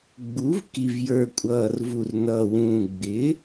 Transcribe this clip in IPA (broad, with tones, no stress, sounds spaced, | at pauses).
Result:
ɡ͡b u˩˥ v k i˨˩ v j ə˞˨˩ kʷʼ ʌː˨˩ r v u˨˩ r n ʌː˨˩ w ũː˨˩ ɡ͡b ɪ˩˥